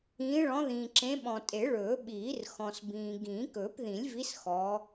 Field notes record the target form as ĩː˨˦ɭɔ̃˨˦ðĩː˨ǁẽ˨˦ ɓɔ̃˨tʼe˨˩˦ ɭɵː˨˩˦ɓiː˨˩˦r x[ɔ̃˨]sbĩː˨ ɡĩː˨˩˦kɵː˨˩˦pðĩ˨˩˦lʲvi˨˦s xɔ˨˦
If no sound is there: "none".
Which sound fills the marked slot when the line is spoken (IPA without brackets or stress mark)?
ɔ̃˨